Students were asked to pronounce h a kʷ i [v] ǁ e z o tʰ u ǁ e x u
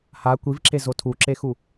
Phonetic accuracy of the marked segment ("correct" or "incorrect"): correct